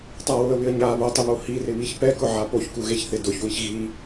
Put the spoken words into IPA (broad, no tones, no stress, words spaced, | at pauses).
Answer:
tˤawʊə̯βɪə̯ ɲa βotˤɪβo hirɪβiç pɛkʊʕa poçkuɣeçθɪ dʊçwiç ɣi